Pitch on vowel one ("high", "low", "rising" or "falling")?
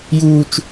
high